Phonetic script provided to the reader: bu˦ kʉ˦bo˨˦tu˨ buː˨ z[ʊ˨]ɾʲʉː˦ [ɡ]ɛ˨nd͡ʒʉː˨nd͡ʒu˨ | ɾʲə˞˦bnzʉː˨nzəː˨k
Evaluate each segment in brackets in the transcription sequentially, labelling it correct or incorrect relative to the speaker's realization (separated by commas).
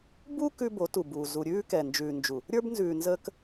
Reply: incorrect, incorrect